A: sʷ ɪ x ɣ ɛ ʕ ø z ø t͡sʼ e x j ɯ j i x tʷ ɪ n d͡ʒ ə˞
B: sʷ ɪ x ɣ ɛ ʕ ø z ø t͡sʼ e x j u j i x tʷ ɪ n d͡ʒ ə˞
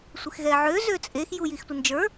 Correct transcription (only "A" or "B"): B